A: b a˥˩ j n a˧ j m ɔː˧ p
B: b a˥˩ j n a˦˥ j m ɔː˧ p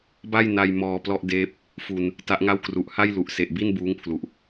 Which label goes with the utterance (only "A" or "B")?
A